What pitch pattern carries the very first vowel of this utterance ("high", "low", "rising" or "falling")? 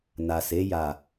low